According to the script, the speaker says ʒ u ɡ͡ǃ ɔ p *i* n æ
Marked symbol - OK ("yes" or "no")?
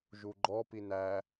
yes